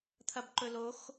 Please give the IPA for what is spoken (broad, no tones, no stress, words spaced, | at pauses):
t̪ʰɐbǃɵlox